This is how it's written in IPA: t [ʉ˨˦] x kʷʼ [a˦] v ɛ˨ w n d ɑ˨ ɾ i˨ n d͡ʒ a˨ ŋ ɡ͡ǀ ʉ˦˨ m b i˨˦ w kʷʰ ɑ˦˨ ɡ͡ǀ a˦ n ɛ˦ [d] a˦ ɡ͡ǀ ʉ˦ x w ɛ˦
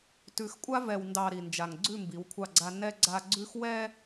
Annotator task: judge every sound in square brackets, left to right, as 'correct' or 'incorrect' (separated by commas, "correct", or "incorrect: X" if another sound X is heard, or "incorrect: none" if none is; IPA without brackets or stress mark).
correct, correct, incorrect: ɡ͡ǀ